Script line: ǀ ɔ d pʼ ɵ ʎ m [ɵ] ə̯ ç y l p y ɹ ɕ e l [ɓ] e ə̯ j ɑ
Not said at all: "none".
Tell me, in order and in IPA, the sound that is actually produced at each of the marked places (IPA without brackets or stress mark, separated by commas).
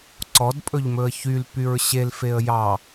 ɵ, f